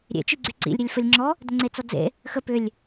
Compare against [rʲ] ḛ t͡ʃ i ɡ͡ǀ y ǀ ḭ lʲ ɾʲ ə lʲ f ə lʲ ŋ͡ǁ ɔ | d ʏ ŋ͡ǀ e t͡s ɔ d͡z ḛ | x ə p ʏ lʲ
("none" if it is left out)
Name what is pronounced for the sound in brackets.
ɾʲ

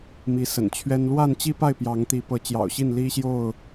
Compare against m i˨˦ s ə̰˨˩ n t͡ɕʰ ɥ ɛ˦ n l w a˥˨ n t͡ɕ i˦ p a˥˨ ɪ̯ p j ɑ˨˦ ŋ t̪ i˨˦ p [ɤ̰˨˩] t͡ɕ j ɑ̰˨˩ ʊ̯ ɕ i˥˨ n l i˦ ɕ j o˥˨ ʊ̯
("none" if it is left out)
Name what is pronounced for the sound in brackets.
ɤ˨˦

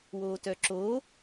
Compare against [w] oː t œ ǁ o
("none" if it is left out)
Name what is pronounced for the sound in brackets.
w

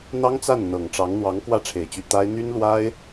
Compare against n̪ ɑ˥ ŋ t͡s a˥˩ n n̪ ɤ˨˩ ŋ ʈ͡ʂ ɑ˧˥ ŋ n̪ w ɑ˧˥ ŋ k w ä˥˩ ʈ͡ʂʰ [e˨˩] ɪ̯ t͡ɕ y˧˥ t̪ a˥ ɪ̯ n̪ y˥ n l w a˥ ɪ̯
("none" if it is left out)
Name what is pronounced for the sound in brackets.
e˨˩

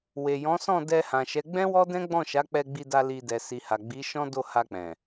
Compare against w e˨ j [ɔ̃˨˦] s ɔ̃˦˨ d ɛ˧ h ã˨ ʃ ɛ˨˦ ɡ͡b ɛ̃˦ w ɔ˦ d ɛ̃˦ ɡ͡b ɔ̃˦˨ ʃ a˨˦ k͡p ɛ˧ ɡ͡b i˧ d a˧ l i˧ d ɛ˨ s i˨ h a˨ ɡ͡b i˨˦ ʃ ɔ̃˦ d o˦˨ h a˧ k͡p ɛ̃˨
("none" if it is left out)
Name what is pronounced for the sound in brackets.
ɔ̃˨˦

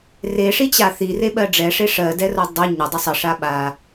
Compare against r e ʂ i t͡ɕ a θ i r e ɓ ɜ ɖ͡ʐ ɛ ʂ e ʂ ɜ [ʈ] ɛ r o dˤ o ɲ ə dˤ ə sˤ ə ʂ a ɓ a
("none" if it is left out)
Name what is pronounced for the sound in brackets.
d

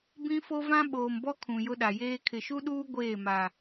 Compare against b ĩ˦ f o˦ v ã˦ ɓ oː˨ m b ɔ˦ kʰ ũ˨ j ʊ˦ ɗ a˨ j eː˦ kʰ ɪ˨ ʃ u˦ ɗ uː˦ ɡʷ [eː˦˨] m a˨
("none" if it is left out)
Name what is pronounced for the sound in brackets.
eː˦˨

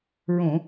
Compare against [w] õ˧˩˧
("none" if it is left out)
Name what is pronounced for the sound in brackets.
ɹ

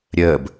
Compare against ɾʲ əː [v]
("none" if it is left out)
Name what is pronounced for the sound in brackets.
b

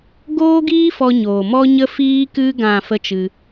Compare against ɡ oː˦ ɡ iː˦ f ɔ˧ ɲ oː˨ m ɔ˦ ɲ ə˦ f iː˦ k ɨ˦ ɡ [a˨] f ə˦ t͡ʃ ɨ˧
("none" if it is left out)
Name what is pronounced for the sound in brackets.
ã˨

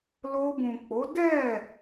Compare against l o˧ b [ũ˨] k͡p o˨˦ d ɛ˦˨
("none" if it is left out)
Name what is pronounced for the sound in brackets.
ũ˨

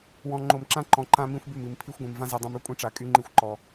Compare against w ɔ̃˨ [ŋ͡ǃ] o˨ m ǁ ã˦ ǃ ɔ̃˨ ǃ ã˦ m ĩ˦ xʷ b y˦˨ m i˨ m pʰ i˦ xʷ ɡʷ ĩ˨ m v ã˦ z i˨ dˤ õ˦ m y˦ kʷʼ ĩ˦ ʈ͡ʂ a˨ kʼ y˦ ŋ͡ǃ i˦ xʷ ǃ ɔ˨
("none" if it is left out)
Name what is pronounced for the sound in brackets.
ŋ͡ǃ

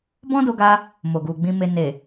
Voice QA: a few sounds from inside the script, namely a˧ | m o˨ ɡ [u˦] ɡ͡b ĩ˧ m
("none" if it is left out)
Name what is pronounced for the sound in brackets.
u˨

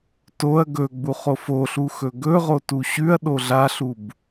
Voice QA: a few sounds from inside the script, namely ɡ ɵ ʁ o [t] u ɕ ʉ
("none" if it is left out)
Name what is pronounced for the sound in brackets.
t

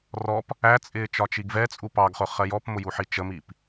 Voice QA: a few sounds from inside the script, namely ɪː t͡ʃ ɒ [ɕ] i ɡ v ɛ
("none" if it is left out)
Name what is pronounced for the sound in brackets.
t͡ʃ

